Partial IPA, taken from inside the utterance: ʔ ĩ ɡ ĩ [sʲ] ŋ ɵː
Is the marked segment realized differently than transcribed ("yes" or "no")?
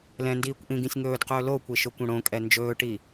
no